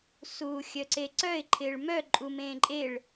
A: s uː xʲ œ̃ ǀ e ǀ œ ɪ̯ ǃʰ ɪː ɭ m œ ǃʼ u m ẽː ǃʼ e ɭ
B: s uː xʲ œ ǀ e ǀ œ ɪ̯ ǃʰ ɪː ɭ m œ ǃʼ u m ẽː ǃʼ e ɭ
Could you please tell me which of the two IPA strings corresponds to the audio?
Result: B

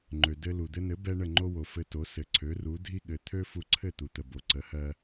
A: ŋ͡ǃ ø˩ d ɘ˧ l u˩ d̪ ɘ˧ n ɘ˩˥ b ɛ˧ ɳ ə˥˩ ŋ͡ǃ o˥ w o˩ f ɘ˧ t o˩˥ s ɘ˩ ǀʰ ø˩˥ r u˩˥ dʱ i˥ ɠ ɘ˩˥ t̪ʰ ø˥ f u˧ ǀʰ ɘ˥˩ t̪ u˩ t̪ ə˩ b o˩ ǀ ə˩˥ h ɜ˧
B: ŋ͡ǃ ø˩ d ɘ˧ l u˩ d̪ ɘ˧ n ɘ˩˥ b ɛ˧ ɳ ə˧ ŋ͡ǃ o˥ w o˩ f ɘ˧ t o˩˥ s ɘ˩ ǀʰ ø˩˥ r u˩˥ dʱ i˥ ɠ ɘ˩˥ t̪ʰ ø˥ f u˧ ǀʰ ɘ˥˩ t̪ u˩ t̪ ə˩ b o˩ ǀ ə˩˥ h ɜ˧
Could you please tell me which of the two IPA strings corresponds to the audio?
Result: A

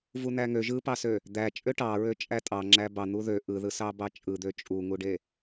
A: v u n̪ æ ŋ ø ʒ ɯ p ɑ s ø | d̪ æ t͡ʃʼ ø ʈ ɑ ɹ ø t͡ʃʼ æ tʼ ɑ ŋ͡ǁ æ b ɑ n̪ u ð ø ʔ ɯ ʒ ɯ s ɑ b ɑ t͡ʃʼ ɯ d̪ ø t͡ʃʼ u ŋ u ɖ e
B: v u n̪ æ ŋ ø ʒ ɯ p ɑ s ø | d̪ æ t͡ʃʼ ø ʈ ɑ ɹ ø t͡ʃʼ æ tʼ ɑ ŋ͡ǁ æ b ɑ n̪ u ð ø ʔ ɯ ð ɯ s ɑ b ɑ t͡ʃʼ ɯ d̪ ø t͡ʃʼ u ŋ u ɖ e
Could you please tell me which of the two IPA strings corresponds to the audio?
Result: B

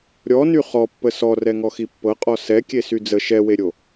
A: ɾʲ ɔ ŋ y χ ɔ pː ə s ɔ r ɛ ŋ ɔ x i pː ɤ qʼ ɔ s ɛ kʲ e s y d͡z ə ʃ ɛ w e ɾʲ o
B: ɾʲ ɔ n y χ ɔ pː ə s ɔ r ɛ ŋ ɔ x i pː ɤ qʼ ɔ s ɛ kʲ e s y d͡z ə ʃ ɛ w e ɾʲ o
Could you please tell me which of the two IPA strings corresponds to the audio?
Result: B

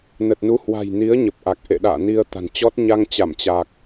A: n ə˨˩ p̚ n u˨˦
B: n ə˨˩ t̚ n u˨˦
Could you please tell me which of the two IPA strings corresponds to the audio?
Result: B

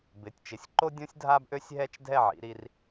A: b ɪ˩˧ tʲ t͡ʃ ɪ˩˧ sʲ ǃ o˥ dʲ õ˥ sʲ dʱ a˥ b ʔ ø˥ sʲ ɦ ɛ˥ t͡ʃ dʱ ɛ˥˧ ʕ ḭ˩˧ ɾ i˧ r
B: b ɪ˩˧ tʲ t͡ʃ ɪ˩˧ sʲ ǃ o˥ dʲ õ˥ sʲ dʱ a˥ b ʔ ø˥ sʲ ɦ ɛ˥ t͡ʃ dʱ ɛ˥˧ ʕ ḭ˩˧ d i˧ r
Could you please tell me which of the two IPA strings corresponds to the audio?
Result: A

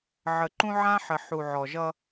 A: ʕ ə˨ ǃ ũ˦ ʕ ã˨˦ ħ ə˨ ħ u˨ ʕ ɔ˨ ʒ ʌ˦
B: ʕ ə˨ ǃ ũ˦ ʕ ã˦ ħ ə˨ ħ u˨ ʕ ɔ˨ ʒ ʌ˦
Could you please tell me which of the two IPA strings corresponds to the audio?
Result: B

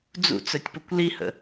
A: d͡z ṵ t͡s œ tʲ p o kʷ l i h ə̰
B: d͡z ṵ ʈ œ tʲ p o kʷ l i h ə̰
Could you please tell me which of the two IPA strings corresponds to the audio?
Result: A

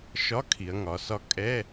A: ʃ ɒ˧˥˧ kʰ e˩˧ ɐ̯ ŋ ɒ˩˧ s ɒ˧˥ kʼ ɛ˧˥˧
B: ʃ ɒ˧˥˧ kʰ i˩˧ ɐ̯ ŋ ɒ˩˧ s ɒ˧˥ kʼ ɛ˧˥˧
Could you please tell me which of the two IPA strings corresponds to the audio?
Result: B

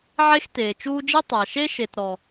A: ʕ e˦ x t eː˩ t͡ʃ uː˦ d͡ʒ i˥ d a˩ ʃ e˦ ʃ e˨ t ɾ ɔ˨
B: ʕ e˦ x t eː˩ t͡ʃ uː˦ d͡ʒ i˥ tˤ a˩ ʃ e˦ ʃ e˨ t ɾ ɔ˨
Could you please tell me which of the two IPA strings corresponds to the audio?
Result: B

